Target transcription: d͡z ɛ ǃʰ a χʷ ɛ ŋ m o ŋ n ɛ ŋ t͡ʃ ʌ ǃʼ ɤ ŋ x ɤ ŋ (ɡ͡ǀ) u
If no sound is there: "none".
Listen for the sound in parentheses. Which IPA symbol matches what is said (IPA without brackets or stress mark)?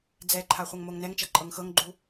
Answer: ɡ͡ǃ